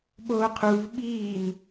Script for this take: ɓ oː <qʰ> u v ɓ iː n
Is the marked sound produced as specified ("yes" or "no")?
yes